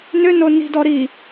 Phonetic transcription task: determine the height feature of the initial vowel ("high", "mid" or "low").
high